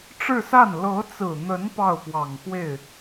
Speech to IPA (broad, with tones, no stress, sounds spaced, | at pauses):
ʈ͡ʂ ɻ̩˥˧ s a˥˩ n l ɤ˧˥ t͡s ɹ̩˨˩ n̪ ə˧˥ n p ɑ˥˩ ʊ̯ p w ɑ˨˩ ŋ x w e˥˩ ɪ̯